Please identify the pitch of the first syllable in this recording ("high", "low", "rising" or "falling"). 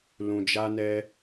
low